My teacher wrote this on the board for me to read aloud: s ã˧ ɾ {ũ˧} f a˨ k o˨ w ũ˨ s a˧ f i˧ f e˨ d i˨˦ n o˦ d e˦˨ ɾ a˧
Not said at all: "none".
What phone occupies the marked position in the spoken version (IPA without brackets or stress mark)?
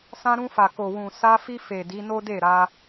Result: ũ˧